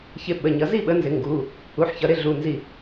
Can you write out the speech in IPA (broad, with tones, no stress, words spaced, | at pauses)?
çɪ˧˩ ɓə˩˧˩ɲʌ˩˧ zi˥˩ɓə˩˥nzɪ˩˧ ŋɡu˩˧˩ | u˩˧˩ħçʌ˩˧ɾɪ˥˩ ɮu˩˧˩nzi˧˩